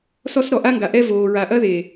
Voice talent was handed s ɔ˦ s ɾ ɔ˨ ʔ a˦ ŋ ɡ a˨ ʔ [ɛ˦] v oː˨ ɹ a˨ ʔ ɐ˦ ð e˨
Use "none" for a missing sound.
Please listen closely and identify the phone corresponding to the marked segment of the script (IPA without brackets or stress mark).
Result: ɛ˦